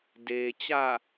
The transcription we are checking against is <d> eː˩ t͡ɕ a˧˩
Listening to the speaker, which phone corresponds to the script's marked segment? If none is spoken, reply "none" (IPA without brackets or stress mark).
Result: d